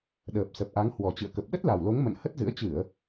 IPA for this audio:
ɗ əː˨˩ p̚ s ə˨˩ p̚ ʔ a˨˦ ŋ h w ɔ˨˩ t͡ɕ ɨ̰˧˨ ə̯ k ə˨˩ p̚ ɗ ə˦˥ t̚ l a˨˩ w l o˨˦ ŋ m ə̰˧˨ n h ə˦˥ t̚ z ɨ̰˧˥ ə̯ t͡ɕ ɨ˧˩˨ ə̯

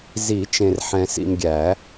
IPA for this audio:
z i˨˩˦ t͡ʃ ẽ˨ r ħ ɛ̃˨ s ḭ˨ m ɡʲ æ˨˩˦

